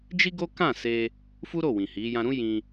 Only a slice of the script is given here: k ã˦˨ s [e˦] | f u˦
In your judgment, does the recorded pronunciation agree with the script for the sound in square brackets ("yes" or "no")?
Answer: no